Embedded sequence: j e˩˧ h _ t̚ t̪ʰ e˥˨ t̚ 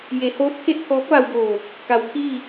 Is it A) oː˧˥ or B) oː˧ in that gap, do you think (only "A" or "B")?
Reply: A